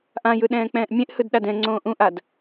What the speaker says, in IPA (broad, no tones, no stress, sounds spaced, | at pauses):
ʔ ã j ɯ ɗ ɛ̃ː k͡p ɛ̃ː ʔ mʲ ẽ ʔ h ɯ d ɗ a d ɛ̃ ŋ͡ǀ õː ʔ ũ ʔ a d